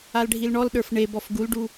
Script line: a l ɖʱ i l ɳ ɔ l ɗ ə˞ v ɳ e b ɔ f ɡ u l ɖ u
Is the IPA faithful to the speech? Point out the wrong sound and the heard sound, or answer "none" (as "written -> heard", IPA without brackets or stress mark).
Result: v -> f